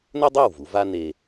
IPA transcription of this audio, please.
n ɵ˥ dˤ ʉ˥˩ w v u˩˥ v a˥ n e˧

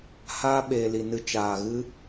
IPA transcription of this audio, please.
h aː˦ ɓ eː˨ l i˨ n ɨ˧ t͡ʃ aː˨ ɣ ɨ˦

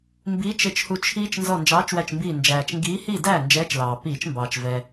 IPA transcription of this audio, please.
m b iː˨˥ t͡ʃ ɪ˧˩ t͡ʃ h u˧˩ t͡ʃʰ iː˦ t͡ʃ n z ɔ˧˩ n d͡ʒ ɑː˨˥ t͡ʃ w æ˧˩ t͡ʃ m b iː˧˩ n d͡ʒ æː˩ t͡ʃ ŋ ɡ iː˨˥ h i˥˩ d æː˥˩ n d͡ʒ ɛː˨˥ t͡ʃ l ɑː˩ p iː˧˩˧ t͡ʃ m b ɑː˩ t͡ʃ v ɛː˩

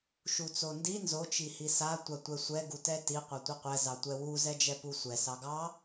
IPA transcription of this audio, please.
ʃ u t͡s o n d i n z o t͡ʃ i h i s a tʷ a tʷ ɛ sʷ ɛ ɡ u t ɛ t i qʷ a tʷ i qʷ ɛ z ɑ tʷ ɛ w u z ɛ d͡ʒ ɛ p u sʷ ɛ s ɑ ɡ ɑ

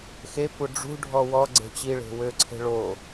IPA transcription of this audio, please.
x e kʷ œ ɖ͡ʐ ṳ ɖʱ ɔ w ɔ ɡ͡ǀ e̤ t͡ɕ i ɭ e̤ w ø ǀʰ e̤ ɭ o

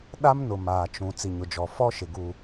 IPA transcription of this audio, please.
ɗ a˦ m n ʊ˨ m aː˨ t͡ʃ ũ˨ t͡s i˨ ɲ ʊ˨ d͡ʒ ɔ˨ f ɔ˦ ʃ ɪ˨ ɡ u˨

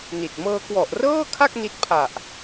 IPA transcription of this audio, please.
n i˨˩ t̚ m ɤː˧ k w ɔ˨˩ ʔ r ɤː˥˩ kʰ a˥˩ k̚ n i˦˥ t̚ pʰ a˨˩ ʔ

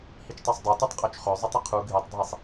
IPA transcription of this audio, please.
h i t͡ʃ tˤ ø sˤ dˤ œ t u tˤ qʼ ø t͡ʃ χ ø zˤ u tˤ ə qʰ u ɡʱ i tˤ dʱ i sˤ

